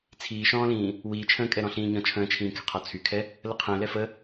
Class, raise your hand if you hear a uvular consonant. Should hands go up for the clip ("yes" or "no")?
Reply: yes